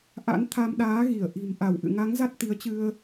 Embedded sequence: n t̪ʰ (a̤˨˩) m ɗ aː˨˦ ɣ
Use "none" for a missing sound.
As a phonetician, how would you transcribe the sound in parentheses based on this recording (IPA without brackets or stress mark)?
a˧